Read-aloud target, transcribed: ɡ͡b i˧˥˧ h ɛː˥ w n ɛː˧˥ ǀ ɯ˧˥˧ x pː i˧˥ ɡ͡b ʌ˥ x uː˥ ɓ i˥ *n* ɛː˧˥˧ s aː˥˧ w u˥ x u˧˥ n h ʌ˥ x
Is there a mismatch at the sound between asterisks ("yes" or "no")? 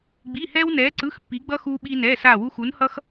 no